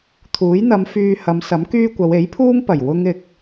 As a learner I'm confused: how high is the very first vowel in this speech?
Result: high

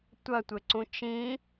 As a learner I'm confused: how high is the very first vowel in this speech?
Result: low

